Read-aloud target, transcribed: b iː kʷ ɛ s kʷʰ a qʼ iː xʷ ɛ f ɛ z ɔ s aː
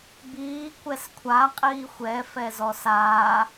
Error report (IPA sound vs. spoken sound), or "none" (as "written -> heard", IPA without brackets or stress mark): none